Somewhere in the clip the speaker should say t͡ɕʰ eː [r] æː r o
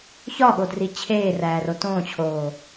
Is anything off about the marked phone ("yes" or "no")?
no